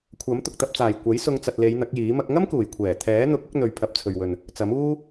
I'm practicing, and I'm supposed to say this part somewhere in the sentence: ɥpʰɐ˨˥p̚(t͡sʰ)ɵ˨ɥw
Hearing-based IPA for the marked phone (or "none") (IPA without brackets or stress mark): t͡sʰ